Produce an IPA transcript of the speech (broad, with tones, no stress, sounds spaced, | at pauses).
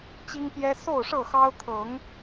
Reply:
t͡ɕ i˦ ŋ p j ɛ˦ s o˥˨ ʊ̯ ʂ ɤ˥˨ x ɑ˦ ʊ̯ t̪ʰ ɤ˨˦ ŋ